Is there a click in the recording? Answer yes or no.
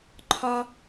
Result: yes